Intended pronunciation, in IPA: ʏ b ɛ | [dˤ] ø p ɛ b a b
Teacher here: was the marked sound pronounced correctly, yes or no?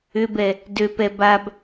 no